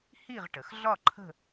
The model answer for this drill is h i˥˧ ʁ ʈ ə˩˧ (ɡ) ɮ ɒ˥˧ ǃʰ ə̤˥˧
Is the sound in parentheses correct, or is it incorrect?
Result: incorrect